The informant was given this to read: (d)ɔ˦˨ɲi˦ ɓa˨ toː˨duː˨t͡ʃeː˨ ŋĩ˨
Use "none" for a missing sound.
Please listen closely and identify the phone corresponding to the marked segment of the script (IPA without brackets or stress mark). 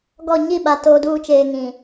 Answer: ɡ